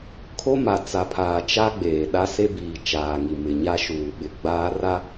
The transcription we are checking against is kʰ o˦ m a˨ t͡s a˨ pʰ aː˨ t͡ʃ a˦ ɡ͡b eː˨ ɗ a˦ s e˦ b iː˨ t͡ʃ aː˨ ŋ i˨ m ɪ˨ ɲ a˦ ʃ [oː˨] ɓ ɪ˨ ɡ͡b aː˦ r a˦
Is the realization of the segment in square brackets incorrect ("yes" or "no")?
yes